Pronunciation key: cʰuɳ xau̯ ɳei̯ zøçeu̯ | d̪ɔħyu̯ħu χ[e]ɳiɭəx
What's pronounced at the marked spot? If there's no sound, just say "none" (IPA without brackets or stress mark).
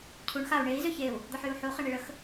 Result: e